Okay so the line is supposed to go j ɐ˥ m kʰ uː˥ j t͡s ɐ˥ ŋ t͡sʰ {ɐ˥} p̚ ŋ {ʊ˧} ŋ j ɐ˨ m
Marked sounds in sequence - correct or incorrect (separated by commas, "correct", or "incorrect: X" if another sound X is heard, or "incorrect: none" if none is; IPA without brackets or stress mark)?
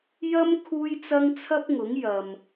correct, incorrect: ʊ˨˥